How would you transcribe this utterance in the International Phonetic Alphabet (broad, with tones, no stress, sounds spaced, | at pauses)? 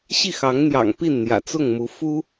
ɕ i˥˩ x ɑ˧˥ ŋ n̪ j ɑ̰˨˩ ŋ p i˥˩ n n̪ j ä̰˨˩ t͡s ʊ˥˩ ŋ m u˧˥ f u˥